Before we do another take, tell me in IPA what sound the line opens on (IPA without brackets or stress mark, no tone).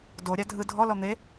d